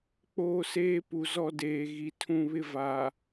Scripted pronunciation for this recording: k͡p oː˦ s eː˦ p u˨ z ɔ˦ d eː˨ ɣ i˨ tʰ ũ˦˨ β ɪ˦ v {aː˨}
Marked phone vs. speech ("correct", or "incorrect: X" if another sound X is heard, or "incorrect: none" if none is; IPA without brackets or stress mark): correct